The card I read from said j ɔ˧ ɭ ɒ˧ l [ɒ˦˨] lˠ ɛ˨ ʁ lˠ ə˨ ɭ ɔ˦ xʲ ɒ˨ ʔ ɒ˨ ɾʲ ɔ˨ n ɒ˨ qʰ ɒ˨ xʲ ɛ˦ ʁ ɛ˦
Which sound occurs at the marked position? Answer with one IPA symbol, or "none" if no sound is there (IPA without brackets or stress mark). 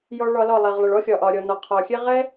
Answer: ɒ˦˨